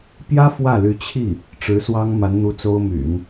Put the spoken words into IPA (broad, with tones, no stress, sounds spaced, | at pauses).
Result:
p j ä˥ f w ä˥˩ l y˧˥ t͡ɕʰ i˥˩ | ʈ͡ʂ ɻ̩˧˥ s w ɑ˥ ŋ m a˧˥ n n̪ u˧˥ t͡s o˥ ʊ̯ m y̰˨˩˦ n